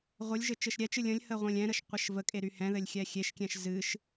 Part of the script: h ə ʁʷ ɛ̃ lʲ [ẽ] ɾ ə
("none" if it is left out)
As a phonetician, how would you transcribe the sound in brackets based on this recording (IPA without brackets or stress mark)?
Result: ɛ̃